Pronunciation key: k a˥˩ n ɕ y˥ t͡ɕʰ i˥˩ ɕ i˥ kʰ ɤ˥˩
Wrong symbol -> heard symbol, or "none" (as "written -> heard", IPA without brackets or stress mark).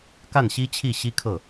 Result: y˥ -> i˥